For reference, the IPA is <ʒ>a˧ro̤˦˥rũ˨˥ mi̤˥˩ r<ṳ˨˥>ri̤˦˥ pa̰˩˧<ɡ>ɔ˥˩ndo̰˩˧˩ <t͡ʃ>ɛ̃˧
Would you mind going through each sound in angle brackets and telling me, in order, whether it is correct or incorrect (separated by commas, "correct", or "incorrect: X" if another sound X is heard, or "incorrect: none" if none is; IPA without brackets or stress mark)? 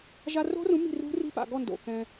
correct, incorrect: ṳ˦˥, correct, incorrect: k